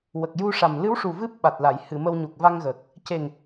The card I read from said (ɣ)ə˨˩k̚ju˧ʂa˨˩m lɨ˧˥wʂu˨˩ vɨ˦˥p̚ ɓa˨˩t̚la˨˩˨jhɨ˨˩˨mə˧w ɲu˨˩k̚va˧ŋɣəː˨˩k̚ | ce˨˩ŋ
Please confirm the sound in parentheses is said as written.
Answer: no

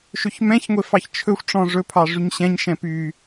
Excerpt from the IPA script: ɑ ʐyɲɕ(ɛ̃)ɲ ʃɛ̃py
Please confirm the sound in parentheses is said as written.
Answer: yes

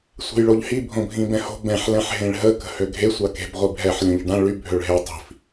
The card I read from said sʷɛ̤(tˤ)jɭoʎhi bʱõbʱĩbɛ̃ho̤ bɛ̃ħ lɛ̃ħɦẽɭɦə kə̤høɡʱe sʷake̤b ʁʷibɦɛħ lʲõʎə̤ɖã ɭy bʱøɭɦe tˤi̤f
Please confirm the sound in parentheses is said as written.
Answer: no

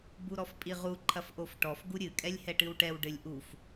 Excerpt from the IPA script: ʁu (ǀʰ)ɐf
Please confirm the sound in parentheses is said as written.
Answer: no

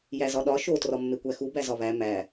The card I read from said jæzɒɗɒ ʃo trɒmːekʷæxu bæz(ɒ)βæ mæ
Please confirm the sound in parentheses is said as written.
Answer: yes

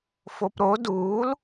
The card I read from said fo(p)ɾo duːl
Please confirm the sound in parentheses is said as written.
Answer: yes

